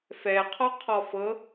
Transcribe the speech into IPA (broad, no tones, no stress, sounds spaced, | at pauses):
f ɛ qʰ ɔ qʰ ɔ f ɤ